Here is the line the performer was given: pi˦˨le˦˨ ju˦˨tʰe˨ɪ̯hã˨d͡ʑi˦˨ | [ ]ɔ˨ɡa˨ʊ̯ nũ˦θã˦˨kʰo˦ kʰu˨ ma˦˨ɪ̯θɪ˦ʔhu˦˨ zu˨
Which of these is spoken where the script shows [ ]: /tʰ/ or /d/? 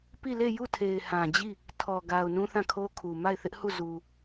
tʰ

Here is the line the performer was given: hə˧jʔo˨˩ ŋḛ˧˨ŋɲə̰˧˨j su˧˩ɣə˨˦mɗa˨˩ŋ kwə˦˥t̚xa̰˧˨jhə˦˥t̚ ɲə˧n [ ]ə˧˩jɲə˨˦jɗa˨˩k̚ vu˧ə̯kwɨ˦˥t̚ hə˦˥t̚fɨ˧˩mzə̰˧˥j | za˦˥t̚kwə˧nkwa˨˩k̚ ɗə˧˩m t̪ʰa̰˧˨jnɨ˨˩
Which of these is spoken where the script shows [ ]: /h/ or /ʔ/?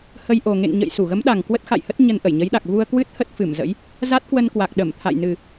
ʔ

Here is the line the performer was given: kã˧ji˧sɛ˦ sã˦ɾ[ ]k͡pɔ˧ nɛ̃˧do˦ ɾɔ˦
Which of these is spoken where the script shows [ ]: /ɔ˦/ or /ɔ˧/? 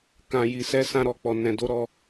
ɔ˧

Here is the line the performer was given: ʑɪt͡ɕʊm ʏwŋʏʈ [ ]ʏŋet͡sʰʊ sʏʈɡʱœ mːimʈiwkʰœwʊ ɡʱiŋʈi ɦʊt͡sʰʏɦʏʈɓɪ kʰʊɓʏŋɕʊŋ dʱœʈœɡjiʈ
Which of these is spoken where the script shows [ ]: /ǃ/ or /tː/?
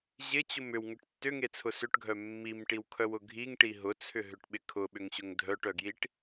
tː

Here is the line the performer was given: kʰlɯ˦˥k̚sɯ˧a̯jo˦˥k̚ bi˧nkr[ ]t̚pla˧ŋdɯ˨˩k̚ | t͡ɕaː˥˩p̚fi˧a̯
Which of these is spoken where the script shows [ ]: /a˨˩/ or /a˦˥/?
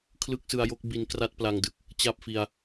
a˦˥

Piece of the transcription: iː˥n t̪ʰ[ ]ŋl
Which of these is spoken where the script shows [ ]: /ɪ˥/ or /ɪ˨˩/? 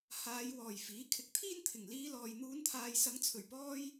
ɪ˨˩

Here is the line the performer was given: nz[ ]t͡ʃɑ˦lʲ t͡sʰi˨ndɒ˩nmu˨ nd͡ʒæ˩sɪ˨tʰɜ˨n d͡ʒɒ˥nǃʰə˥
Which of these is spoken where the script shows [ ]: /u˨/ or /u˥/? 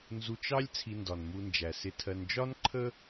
u˨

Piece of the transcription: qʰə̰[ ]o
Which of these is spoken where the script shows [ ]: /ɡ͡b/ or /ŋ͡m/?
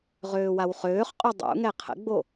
ɡ͡b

